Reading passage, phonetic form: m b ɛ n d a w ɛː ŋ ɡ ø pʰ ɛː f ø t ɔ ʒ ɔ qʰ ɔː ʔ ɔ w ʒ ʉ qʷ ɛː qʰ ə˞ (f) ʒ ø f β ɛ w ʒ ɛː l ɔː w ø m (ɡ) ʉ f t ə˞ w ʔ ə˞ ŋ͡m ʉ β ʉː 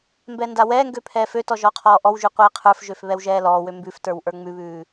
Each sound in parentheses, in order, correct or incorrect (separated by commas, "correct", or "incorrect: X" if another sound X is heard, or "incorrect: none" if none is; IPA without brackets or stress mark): correct, incorrect: b